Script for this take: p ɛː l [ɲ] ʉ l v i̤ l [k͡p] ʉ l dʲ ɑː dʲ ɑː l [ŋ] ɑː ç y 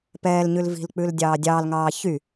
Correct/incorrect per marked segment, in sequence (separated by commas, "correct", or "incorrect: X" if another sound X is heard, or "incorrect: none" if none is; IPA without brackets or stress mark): correct, correct, correct